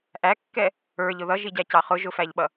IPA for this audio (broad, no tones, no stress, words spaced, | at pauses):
ʔækːɛ | ə˞ʎ ʊðʌʒiɟæ cɑχʊʒ ʊfæʎɓʌ